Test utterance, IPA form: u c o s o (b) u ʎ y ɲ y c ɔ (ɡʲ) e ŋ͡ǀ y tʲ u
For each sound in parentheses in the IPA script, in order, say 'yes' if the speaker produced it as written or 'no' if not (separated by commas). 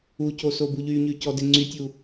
yes, no